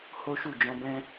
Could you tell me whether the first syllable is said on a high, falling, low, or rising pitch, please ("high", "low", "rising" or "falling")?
high